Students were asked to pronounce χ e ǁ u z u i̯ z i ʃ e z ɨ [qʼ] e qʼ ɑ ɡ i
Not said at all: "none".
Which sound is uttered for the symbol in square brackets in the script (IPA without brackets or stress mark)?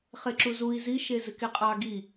k